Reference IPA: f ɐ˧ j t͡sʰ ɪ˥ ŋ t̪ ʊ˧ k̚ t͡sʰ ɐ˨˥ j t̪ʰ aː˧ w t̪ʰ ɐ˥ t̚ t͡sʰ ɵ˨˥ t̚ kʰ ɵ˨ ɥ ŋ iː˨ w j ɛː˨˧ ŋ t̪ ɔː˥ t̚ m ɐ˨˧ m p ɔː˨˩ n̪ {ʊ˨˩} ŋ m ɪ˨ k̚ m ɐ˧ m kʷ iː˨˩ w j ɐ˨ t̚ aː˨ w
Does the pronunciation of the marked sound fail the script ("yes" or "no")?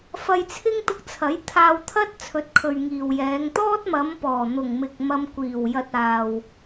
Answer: no